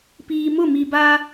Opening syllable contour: low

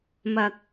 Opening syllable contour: low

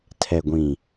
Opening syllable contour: low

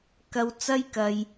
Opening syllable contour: high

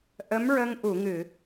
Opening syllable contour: rising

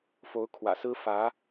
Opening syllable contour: rising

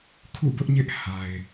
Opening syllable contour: falling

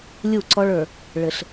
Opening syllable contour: falling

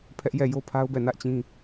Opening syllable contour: high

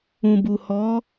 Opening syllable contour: low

